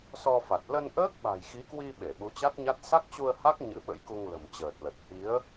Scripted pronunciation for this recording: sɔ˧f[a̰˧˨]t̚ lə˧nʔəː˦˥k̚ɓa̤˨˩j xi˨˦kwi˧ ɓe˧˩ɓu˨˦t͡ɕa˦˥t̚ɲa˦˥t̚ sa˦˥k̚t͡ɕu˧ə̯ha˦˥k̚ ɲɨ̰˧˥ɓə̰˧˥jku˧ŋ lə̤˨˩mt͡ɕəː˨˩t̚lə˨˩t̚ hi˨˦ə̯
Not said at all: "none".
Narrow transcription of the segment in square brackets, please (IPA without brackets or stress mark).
a˨˩